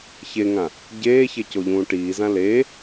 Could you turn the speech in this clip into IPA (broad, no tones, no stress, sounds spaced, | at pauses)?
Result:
ç e ŋ ã | ɟ eː ç e c o ʎ ũː ʈ iː z ã l e